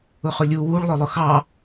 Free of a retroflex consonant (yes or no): no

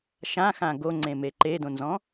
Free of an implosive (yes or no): yes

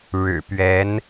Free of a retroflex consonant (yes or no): no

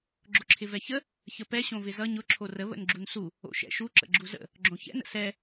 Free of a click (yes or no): no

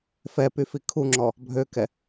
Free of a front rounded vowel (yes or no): no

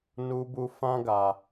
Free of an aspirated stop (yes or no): yes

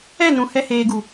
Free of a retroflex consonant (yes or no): yes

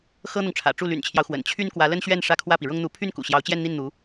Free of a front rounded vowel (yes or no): no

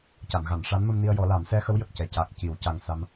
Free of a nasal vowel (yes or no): yes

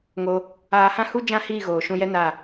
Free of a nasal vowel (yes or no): no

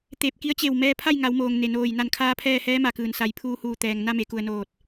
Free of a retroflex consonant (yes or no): yes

